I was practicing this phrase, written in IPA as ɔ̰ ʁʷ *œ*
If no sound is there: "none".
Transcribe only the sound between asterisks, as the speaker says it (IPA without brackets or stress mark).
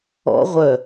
œ